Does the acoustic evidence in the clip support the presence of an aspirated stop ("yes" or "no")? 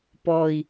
no